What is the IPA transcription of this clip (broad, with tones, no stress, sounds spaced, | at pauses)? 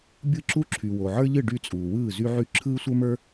bʲ ɯ˥˨ ǁ u˥ ǁʰ y˨ w o˨ ʕ ə˞˥ ʎ ɯ˥˨ ɖ y˥˨ t͡sʼ uː˨ w ɯː˥˨ z y˥ ʕ y˥ ǁʰ ɯː˥ sʷ ə˞˥ m ə˞˥